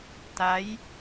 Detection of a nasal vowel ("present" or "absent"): absent